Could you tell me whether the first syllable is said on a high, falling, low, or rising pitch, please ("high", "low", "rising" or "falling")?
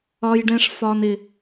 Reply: high